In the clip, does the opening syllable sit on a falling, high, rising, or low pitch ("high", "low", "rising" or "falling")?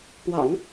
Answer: low